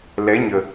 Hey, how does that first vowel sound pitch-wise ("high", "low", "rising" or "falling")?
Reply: rising